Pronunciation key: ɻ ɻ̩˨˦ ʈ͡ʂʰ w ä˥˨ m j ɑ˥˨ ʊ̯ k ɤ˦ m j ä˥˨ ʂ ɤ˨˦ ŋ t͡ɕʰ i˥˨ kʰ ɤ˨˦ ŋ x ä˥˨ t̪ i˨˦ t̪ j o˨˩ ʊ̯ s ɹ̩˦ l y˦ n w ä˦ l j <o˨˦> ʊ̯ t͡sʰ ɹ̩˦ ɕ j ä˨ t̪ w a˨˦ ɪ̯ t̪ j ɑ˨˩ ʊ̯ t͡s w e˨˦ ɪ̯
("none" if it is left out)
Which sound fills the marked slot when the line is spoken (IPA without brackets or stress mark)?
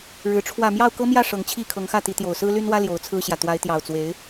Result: o˨˦